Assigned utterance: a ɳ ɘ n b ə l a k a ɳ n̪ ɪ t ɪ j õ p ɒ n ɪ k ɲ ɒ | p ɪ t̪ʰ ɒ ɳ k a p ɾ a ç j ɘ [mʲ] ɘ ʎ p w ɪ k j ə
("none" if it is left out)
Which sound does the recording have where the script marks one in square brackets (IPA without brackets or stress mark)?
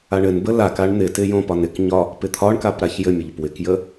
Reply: mʲ